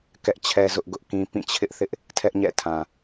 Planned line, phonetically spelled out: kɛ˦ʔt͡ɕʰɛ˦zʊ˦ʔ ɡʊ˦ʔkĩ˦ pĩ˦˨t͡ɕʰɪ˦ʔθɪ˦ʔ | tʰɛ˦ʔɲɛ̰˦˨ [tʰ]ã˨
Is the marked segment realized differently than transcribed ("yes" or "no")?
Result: no